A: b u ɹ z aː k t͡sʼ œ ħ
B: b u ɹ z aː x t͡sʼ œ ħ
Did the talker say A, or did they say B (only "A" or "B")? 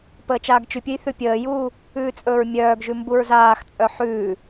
B